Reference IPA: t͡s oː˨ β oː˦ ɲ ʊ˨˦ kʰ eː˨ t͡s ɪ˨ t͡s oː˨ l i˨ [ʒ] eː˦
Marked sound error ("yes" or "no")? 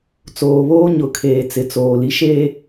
yes